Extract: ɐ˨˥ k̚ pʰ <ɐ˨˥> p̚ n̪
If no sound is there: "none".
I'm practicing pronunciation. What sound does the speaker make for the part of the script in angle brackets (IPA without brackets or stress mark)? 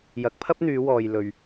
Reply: ɐ˥